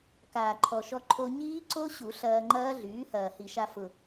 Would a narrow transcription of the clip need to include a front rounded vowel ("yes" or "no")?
yes